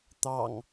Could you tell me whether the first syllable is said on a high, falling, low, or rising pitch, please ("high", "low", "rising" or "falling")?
low